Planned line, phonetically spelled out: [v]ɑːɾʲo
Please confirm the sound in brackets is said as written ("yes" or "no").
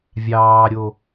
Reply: no